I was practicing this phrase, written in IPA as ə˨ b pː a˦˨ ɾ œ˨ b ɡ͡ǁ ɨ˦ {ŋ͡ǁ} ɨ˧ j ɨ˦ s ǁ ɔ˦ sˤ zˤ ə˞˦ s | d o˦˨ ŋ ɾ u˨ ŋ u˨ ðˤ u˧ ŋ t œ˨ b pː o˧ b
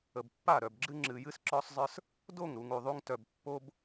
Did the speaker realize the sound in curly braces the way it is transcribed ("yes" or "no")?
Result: yes